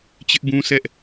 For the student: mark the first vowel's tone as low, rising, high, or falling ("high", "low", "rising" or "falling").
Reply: high